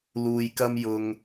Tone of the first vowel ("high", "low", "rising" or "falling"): low